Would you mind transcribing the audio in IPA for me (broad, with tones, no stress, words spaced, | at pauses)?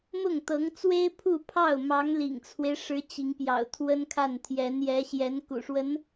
mʊ˥˩ŋt̪ɤ˧˥ŋt͡swe˥ɪ̯ pʰu˥˧pʰɑ˥˩ʊ̯ mɑ˧˥ŋlḭ˨˩ŋt͡sʰwe˦ɪ̯ʂɻ̩˧˥ t͡ɕi˧˥ŋpjɑ̰˨˩ʊ̯t̪ʰwə˥nkʰa˥˩n t̪ʰjɛ˧˥njɛ˧˥ ɕjɛ˧˥nkṵ˨˩ʂwə˧˥n